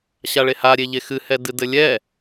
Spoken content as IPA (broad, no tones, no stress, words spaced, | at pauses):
ɕaɭeha ɾʲeʎexɨ hɛdɨdɘlʲɛ